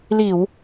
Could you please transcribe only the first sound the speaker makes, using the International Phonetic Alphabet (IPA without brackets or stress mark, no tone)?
l